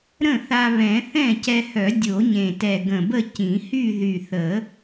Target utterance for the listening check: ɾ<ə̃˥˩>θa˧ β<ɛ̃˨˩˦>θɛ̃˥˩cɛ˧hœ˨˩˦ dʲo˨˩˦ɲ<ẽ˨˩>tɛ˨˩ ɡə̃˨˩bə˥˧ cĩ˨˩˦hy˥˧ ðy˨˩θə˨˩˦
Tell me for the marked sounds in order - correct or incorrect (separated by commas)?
correct, correct, correct